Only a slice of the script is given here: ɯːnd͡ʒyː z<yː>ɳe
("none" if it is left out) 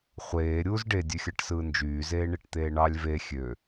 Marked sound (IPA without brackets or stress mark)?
eː